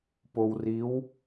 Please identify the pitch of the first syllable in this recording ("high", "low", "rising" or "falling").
low